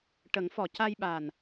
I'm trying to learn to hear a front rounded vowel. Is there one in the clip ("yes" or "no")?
no